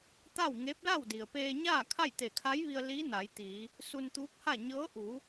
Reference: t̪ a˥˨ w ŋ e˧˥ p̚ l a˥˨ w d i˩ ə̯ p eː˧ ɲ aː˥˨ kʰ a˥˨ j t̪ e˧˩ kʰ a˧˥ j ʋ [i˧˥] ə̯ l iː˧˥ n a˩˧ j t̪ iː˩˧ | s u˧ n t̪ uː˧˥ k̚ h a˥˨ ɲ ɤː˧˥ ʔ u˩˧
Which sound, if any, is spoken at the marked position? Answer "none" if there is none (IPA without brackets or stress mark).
i˧